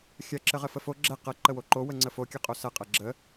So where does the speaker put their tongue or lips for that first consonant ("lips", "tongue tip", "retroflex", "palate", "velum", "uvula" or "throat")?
velum